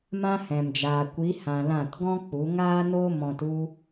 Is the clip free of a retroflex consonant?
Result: yes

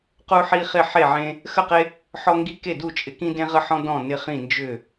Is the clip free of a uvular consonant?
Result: no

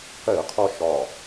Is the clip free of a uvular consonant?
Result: no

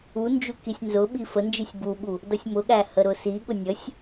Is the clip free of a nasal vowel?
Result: yes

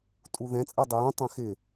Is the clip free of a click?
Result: yes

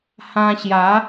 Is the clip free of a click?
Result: yes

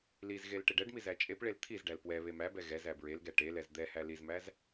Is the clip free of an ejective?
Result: no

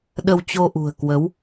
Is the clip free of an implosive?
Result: no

